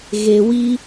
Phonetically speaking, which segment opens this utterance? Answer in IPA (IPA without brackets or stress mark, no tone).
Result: ɣ